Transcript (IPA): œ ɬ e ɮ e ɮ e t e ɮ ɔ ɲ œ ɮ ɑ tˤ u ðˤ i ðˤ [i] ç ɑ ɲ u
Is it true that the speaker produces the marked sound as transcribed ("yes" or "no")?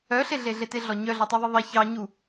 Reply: no